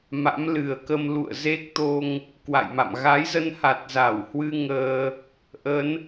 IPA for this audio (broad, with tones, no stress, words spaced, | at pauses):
ma̰˧˥mlɨ˨˩ə̯kə˧m lṵ˧˨ə̯ ze˦˥k̚t̪o˧ŋ | kwa̰˧˨jma̰˧˨m ɣa˨˦jzə˧nha˨˩t̚ za˧˩w hwɨ˧ ŋəː˧ | ʔə˨˦n